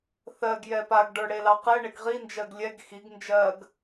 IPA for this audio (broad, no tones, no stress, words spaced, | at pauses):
θɜɡ jɛpaɡ ɖə˞ɽelɑqɛ ɳeɡʁi nd͡ʒɜɡlʲɛɡ xiɡ nd͡ʒɜɡ